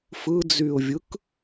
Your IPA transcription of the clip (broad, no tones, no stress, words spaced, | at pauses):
fɯd͡zyʊ̯vʲɯk